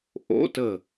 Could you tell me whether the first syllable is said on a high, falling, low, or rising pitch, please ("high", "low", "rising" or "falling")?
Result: rising